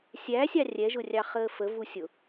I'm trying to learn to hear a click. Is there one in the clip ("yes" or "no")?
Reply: no